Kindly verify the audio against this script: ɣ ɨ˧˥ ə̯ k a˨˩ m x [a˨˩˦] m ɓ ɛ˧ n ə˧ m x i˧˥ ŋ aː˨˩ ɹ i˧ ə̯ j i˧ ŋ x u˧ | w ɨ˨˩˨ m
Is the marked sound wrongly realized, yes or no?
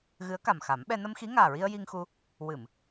no